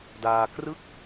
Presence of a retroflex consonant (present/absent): absent